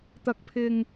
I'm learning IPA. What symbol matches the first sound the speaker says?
t̪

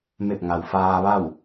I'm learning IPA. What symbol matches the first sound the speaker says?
m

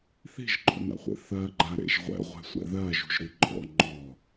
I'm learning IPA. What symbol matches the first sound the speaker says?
θ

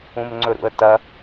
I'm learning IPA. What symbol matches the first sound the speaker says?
ũ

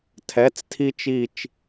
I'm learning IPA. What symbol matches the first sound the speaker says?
tʰ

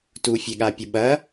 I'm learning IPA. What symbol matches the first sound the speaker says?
t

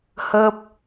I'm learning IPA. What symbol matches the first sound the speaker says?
h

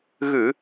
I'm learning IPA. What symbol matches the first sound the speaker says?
ɣ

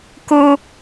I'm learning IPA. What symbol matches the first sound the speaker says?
k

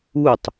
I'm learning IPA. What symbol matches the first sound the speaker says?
u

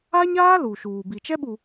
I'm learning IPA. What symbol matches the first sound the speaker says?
a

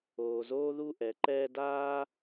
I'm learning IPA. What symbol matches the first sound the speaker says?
oː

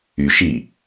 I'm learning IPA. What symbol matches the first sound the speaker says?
y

